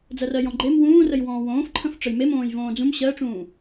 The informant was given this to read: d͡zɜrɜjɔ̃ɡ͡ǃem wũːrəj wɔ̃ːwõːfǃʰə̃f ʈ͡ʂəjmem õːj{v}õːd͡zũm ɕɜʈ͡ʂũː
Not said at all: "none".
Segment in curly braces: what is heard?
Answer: v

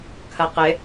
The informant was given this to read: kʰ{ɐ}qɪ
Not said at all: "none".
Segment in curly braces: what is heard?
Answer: ɐ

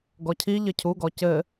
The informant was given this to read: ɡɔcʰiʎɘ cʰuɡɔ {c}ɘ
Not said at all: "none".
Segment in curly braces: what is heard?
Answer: c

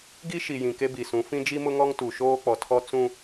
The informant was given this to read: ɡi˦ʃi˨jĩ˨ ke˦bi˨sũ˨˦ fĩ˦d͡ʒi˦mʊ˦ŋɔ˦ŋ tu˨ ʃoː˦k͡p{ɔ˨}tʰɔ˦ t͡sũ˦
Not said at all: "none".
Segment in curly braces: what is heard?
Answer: ɔ˨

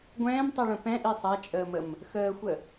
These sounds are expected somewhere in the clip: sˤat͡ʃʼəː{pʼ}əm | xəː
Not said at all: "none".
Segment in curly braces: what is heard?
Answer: m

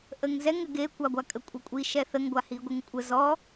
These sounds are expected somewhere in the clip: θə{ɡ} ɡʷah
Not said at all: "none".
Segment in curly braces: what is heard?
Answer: ŋ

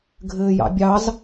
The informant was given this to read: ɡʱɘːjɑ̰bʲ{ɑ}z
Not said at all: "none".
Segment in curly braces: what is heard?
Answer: ɑ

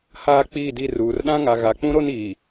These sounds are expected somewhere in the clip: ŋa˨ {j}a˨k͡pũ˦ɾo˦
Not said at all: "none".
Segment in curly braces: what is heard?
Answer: ɣ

